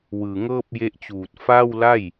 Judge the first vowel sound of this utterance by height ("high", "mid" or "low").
high